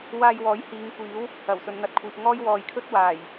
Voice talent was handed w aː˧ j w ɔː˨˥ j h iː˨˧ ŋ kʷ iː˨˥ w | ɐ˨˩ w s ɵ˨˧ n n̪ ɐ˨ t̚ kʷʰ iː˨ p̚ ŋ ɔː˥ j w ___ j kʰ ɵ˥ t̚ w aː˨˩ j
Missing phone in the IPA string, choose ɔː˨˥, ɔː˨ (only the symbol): ɔː˨